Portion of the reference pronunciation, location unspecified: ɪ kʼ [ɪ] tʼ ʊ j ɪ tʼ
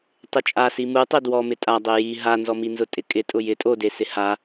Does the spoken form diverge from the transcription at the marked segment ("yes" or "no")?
no